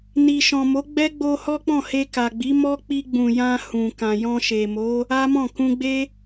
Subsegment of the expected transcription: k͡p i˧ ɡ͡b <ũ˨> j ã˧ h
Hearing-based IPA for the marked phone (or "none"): ũ˨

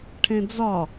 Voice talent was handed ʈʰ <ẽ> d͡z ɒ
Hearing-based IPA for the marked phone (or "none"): ẽ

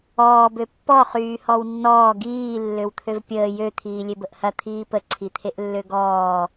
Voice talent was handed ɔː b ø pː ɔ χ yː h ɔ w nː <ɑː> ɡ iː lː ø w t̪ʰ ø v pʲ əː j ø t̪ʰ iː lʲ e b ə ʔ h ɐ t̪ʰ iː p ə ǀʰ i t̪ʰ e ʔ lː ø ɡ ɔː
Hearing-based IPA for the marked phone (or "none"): ɔː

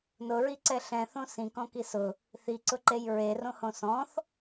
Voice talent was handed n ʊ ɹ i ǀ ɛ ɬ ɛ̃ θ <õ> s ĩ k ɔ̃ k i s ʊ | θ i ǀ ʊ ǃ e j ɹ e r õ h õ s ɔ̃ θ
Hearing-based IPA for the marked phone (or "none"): õ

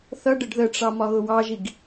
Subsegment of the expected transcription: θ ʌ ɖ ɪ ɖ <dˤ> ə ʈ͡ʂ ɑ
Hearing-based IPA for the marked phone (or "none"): ð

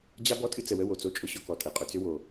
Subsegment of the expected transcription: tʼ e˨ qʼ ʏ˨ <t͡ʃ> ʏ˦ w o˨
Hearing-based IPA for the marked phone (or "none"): t͡s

